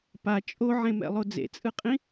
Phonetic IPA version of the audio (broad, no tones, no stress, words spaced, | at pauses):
pa t͡ʃʼoʕẽmɛ̰lˠo d͡zḛt͡sʼɯqʼĩ